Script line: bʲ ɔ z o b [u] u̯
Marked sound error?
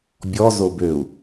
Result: yes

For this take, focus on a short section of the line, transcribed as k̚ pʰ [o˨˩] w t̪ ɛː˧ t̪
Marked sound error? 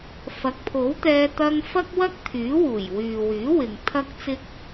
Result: yes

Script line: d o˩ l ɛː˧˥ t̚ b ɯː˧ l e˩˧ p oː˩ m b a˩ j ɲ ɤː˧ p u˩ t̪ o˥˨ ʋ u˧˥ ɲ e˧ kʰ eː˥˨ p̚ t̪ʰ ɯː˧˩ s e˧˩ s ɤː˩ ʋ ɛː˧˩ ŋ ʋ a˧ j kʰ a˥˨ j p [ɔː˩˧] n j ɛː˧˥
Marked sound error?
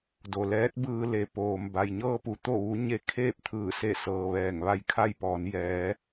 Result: no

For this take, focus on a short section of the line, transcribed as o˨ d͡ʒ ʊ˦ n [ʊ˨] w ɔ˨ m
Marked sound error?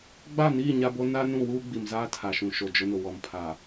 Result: no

